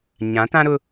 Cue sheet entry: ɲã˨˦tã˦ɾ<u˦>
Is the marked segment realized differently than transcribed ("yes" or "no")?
yes